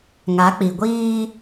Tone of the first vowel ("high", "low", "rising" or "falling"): rising